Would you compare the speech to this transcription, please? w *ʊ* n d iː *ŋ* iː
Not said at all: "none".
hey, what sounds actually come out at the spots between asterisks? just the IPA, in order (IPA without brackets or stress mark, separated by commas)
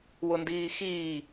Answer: ʊ, x